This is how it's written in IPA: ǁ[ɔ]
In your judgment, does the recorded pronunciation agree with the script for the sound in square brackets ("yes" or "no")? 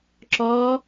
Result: yes